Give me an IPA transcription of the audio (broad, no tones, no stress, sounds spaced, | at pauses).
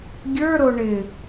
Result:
ɡʲ ə˞ ɾ o ɳ ɪ